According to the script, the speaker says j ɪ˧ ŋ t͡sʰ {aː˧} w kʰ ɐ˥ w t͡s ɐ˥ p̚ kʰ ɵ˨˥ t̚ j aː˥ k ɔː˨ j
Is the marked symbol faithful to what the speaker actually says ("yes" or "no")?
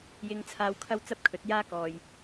yes